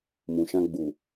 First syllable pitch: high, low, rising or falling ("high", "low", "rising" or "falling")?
low